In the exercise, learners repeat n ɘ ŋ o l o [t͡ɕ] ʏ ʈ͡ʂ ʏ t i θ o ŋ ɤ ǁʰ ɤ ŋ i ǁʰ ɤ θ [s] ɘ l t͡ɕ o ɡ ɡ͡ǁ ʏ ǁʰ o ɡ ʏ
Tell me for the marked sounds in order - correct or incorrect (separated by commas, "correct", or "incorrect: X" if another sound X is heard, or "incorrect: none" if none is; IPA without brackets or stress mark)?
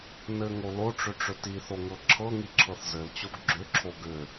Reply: incorrect: ʈ͡ʂ, incorrect: z